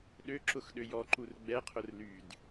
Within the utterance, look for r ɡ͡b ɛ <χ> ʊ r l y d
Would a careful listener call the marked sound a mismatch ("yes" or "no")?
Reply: yes